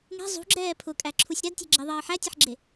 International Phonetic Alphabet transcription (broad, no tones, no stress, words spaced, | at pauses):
ŋe̤ zˤṳɡ͡ǁɛː pʰʊkʼæǁʰusʲ ɾædtʲe̤ɡ͡ǁeðˤʌː ħætʲʌħɡ͡ǁe